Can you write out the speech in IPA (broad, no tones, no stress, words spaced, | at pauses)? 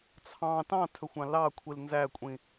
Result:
t͡sʰɑ̃ tɑ̃tʰɵxʷɑ̃ lɑkʷʰil nzækʷʼĩ